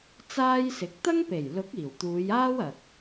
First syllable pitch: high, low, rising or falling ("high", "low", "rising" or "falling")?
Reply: high